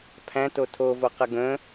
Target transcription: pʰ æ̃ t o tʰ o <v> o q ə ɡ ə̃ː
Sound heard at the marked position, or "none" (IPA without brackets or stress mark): v